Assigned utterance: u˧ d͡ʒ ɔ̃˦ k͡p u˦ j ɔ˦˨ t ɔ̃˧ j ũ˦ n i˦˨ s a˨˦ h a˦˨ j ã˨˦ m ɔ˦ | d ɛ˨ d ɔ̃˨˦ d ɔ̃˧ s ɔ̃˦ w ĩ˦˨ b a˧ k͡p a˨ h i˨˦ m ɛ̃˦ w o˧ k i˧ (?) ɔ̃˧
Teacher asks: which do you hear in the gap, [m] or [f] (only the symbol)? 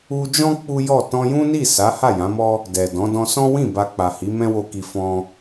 f